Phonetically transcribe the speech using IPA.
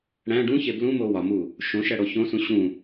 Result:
ɽ æ̃ ɖ ũ ç e b l ũ m o w ɒ m u | ʃ õ ʃ æ ɽ o ç õ s ũ ɕ ũ

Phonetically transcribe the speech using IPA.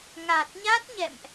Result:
ŋ a˨˩ t̚ ɲ a˦˥ t̚ ɲ ɛ̰˧˨ m ʔ

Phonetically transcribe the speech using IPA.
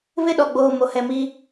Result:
β ɪ˦˨ ɗ ɔ˨ ɡ͡b oː˨ m o˨ h ɛ˨ m i˦

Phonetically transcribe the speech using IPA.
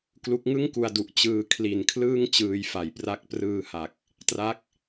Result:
k l u˦˥ k̚ ŋ ɯ˥˩ ŋ k u˧ a̯ d u˨˩ ʔ t͡ɕ ɯː˧ kʰ l i˨˩ n kʰ l ɯː˥˩ ŋ t͡ɕ ɯː˧ j f a˨˩ j p r a˦˥ k̚ p r ɯː˧ h a˨˩ k̚ | t r a˦˥ k̚

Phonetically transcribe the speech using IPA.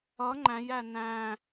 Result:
ʌ ŋ͡ǃ æ̃ j æ n æ̃

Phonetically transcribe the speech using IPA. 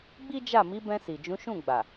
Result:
ɡ͡b i˦ d͡ʒ a˦˨ m i˨˦ b ɛ̃˧ s i˨ d͡ʒ ũ˨˦ ʃ ũ˦˨ ɡ͡b a˨

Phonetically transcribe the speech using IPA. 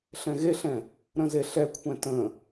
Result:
ɬ ɛ̃ ɣ e ɬ ɛ̃ | ɾ ə̃ z e ɬ ɛ kʷʰ ɛ̃ t ə̃

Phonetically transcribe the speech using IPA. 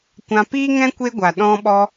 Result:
kʷ ã˧ p iː˦ ŋ ɛ̃˦ kʷ e˦ ɡʷ a˨ ɗ ɔ̃˧ ɓ ɔ˧

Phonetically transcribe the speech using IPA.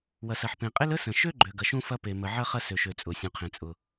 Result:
w ɐ˩ s ɐ˩ ħ p ẽ˩ qʼ e˥ l ə˥ s ə̃˩ ʃ ø˥ ɡ͡ǃ ø˩ ɡ ɐ˩ ʃ ũ˥ f ɐ˥ p e˩ m ə˩ ʕ ɐ˥ χ ɐ˥ s ø˩ ʃ ø˩ t͡sʼ ʊ˩ sʲ ũ˩ qʰ ẽ˩ t͡sʼ ʊ˩

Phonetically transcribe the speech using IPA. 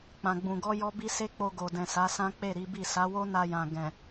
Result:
k͡p ã˨ ɡ͡b ũ˨ ɡ ɔ˧ j ɔ˦ b i˦ s e˦ k͡p o˧ ɡ o˨ d ɛ̃˨ s a˨˦ s ã˦ k͡p e˦˨ ɾ i˨˦ b i˦˨ s a˨˦ w o˦ n a˧ j ã˨ ɡ ɛ̃˨

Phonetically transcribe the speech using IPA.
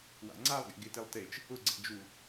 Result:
w a̰ ŋ͡ǀ a lˠ ɡ ɛ̰ ɡ ɪ t e lˠ t e t͡ʃ | ʊ ɡ͡ǀ ɛ̰ d͡ʒ u

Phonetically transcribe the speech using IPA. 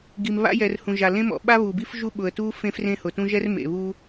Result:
ɡ i˩ m β a̰˦ j ɛ˩ r h ũ˩ ʒ a˩ l ẽ˦ m ɔ̰˩ ɓ a˦ β u˩ b i˦ f ʒ u˦ ɓ ʊ˩ ə̯ t u˦ f ẽ˦ f r ẽ˦ h ʊ˩ t ũ˦ ʒ ɛ˦ r m ḛ˩ β u˦

